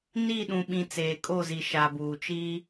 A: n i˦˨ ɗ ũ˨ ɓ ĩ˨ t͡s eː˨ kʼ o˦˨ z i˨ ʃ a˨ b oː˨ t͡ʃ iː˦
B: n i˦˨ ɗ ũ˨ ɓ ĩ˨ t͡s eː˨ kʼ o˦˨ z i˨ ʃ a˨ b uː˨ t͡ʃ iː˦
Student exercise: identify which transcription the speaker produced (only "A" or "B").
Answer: B